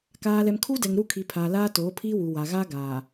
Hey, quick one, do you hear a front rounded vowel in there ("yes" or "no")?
no